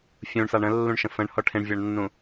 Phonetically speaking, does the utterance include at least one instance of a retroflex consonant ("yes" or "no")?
yes